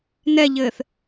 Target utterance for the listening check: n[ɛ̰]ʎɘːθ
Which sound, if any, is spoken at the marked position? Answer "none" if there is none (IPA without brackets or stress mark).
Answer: ɛ